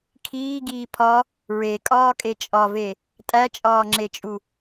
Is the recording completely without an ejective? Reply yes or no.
no